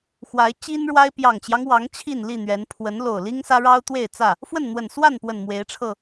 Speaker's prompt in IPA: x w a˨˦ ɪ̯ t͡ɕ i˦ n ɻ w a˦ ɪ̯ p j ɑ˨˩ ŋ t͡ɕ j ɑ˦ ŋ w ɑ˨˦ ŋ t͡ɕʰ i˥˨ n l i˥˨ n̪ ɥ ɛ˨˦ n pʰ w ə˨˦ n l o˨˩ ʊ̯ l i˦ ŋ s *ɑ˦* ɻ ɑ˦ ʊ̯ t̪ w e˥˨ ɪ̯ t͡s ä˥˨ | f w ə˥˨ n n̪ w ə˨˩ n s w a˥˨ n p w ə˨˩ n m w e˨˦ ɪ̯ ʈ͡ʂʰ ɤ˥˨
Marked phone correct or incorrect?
incorrect